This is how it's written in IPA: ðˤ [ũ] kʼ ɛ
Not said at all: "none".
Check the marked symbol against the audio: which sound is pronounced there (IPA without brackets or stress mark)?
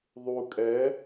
u